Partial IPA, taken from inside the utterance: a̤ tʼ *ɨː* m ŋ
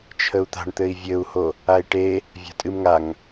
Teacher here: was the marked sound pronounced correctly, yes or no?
no